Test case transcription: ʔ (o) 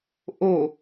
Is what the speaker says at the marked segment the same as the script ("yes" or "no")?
yes